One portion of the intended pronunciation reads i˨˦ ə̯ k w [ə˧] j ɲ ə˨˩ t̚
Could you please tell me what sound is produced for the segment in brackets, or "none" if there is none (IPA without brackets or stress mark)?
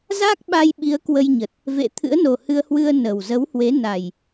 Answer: ə˧